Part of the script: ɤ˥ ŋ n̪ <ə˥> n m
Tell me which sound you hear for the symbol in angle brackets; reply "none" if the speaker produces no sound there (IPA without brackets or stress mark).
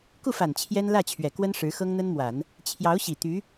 ə˥